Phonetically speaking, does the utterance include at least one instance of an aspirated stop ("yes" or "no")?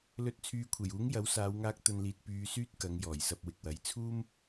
yes